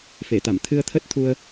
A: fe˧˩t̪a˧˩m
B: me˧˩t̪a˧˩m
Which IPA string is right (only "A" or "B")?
A